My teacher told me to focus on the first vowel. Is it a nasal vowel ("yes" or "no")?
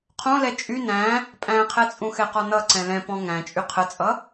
yes